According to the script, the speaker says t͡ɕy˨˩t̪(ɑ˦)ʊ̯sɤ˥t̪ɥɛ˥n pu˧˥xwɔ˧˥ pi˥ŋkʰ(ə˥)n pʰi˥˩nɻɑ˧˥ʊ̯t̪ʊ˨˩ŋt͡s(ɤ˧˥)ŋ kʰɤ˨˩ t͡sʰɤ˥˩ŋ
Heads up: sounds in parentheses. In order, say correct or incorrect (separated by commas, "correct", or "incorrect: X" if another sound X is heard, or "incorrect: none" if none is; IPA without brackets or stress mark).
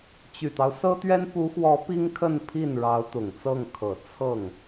correct, incorrect: ə˥˧, incorrect: ɤ˥˩